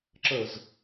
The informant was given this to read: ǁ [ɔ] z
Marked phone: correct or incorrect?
incorrect